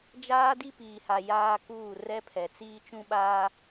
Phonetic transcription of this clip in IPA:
d͡ʒaː˦di˦piː˨ha˨ jaː˦kuː˦˨ rɛ˦pʰɛ˨ t͡siː˦t͡ʃũ˦ɓaː˦

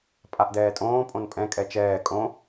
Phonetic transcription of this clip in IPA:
pʼaʔdɛːtʼõː pʼõnpʼɛ̃ kʼɛt͡ʃɛː kʼõ

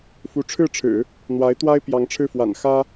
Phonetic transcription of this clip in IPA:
fu˧˥ ʈ͡ʂʰɻ̩˥˩ʈ͡ʂʰɻ̩˨˩˦ | n̪wa˧˥ɪ̯t̪wa˥ɪ̯ pjɑ˧˥ŋʈ͡ʂʰɻ̩˥˩ fwa̰˨˩n xä˥

